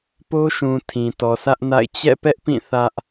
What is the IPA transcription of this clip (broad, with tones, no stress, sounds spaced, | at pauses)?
p o˦ ʃ ũ˨ tʰ ĩ˨ t ɔ˨ sʰ ä˦ ʔ n a̰˦˨ ɪ̯ t͡ɕ ɛ̰˦˨ p ɛ˦ ʔ p ĩ˦˨ θ ä˦ ʔ